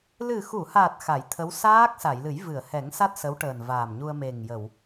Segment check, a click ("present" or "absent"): absent